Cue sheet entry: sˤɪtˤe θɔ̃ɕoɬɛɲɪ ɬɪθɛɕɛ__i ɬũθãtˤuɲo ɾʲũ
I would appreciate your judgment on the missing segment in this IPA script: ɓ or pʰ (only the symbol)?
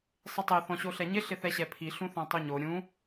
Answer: pʰ